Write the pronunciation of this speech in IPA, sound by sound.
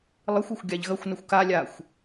lˠ ɨ xʷ o xʷ ɡʲ a ʎ ɣ ɐ xʷ n ɐ xʷ k a lʲ a xʷ

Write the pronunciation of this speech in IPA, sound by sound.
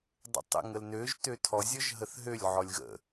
dˤ ə̰ tˤ ə̰ ŋ ə l n ø ʒ t ø tʰ ɔ zʲ ɔ ʒ ɦ ə θ ɦ ø lʲ ʕ ɔ lʲ ɣ ə̰

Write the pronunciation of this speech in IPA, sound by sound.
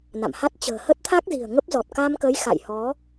n a̰˧˨ m h a˦˥ t̚ t͡ɕ ə̤ː˨˩ h ə˦˥ t̚ t̪ʰ a˦˥ k̚ z i̤˨˩ ə̯ ŋ ə˦˥ p̚ z ɔ˨˩ t̚ k a˧ m k ə˨˦ j x a̰˧˨ j h ɔ˨˦

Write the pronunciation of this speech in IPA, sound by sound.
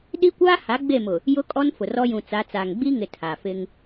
ɗ i˦ kʷ aː˦ h a˨˦ ɡ͡b e˦˨ m ʊ˨ | j ʊ˦ kʼ ɔ˦ n f ʊ˨ r ɔ˦ j ũ˨ t͡s a˨˦ t͡s aː˨ ŋ ɡ͡b i˦ ŋ ɪ˨ tʰ a˨ f ɪ˦ ŋ

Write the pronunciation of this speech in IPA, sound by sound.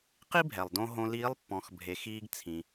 q i˥ bʱ ɛ˩ lˠ d õ˧ ɦ õ˧ l iː˧˥ lˠ pː ɔ̃˩˧ x bʱ e˩˧ x iː˧ ɡ t͡sʰ ĩ˩

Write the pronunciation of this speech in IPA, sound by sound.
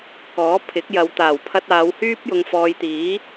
k ɔː˨˥ pʰ ɪ˨˥ k̚ j ɐ˨˧ w t̪ aː˨˩ w pʰ ɐ˧ t̚ aː˨˧ w h yː˥ p̚ j ʊ˧ ŋ f ɔː˧ j t̪ iː˨˥

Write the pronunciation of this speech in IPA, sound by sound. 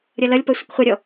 ɾʲ ʌ l ʌ lʲ p ʌ sʷ ʌ kʷ χʷ ʌ ɾʲ ɔ

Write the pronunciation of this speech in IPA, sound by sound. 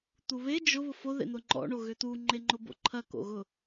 t̪ u β e d͡ʒ ʊ β ʊ f o ð ḛ n̪ ʊ ŋ͡ǃ ɔ̰ ɳ o ɣ ʏ t̪ u ŋ͡ǃ e ŋ͡ǃ ʊ b o̰ ǃʰ ɐ k o̰ ɣ ʊ

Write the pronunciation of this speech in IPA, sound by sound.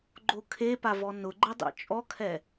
ɡ͡ǃ o kʰ e p a v ɔ n ʊ ɡ͡ǃ ɪ dˤ ḭ t͡ʃʼ ɔ kʰ ɛ

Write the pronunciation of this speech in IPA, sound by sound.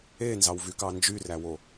e n z ɑ w v y k ɑ n d͡ʒ y r æ w o

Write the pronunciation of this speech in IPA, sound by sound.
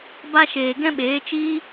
b a˦ ʃ eː˨ ɡ ɛ̃˦ ɓ eː˨˦ t͡ʃ iː˦

